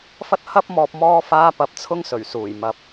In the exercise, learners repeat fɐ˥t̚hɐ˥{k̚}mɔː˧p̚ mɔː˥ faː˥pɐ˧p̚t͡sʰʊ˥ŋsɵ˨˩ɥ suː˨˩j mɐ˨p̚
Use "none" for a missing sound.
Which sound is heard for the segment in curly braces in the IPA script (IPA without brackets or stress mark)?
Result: p̚